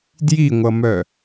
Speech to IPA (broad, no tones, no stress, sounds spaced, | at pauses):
d j i ŋʷ ʌ m œ